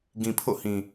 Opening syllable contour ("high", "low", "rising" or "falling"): low